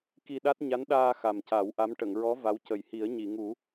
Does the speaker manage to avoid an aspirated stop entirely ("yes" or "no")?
yes